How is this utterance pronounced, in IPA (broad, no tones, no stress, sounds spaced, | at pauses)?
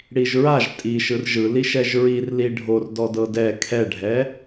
ɽ i ʒ ɹ a ʒ tʼ i ʃ ɯ r ʒ ɯ l i ʃ ɛ ʒ ɹ i r l i ɖʱ o r d ɔ d ɤ d ɛ kʰ ɛ ɖʱ ɛ